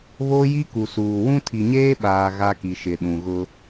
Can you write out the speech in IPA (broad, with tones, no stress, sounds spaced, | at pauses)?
β o˦ j i˦ k u˨ s uː˨ w ũ˦ tʰ i˨ ɲ eː˦ ɓ aː˨ ɣ a˦ k i˨ ʃ ɪ˨ ɗ ũ˨ ɣ ʊ˦